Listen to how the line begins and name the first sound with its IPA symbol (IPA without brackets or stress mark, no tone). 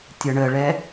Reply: tʲ